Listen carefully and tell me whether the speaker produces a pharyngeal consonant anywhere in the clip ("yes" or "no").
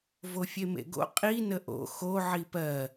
yes